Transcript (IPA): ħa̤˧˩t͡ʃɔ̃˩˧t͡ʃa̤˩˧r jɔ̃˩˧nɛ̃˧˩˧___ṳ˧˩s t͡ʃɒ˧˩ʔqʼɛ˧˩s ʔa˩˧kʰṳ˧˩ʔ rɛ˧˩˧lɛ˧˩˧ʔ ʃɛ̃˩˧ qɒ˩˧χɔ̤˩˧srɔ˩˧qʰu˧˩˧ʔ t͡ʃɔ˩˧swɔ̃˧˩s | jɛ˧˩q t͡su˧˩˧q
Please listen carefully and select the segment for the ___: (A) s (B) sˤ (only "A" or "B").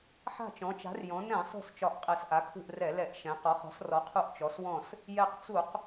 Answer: B